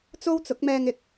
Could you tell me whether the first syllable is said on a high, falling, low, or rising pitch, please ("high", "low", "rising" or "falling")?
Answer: high